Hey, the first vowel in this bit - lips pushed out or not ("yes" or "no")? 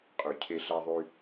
yes